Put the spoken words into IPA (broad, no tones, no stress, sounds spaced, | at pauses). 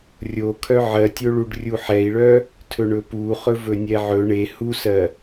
rʲ o kʰ œ ʕ ɜ tʲ o ɭ u ɖ rʲ u ħ ɛ i̯ ɭ œ | tʰ ɵ ɳ ɵ p u χ ɵ v ɵ nʲ ɛ ʕ ɵ ɳ e h u s ɜ